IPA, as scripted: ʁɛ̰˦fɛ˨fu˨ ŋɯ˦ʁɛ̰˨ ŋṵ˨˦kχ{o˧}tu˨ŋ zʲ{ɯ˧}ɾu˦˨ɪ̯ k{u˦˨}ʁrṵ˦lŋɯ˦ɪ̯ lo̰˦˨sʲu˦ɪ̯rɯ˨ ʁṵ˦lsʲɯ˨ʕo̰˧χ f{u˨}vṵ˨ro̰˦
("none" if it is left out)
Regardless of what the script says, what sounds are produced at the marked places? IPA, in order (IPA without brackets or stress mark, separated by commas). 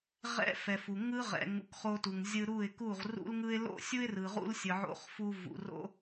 o˧, ɯ˧, u˦˨, u˧